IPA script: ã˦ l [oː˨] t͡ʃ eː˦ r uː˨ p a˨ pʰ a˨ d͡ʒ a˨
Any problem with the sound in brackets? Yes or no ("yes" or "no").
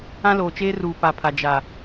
no